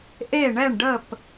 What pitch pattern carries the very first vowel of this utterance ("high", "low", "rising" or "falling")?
falling